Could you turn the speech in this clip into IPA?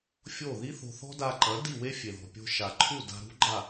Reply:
fʲ o˦˨ ð i˦ θ o̤˧ θ ɔ̤˦ d a˧ ǃ ɐ˨˦ d i˦˨ w e˦ fʲ e˨ ð ɔ̤˨ pʲ o̤˧ ʃ a˨ ǃʰ u˦˨ d a̤˧ ɾ ṳ˦ ɡ͡ǃ a˦˨

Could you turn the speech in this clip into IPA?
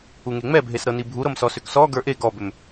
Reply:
u ŋ e ŋ͡m ɛ bʱ e s ɾ ɤ n i bʱ u ɾ ɤ m s ɔ s ʏ k s ɔ ɡ ə˞ ʔ e ɡ ɔ b ʏ m

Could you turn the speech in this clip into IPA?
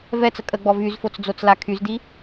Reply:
v ɛ t͡s ə kʼ ə ɡ͡b ɔ v y z f o t͡s d͡z o t͡s l a kʰ y z d i

